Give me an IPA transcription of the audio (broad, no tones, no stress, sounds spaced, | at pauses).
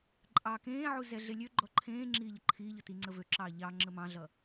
ǃʼ ɑː k ẽː ʕ u z ɛ ɮ e lʲ ø ɡ͡ǃ ɔ ǃʰ ẽː ŋ͡ǁ iː ʎ ə ǃʰ iː ʎ ɔ t i ŋ͡ǀ ə v ø ǁ ɑː ʎ ɑ ŋ͡ǁ ə m ɑ̃ ɮ ʌ